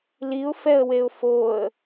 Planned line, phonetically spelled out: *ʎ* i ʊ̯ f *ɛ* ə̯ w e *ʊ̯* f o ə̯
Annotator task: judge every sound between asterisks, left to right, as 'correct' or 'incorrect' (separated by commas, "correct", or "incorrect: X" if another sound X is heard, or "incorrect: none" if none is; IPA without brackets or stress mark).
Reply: incorrect: l, correct, correct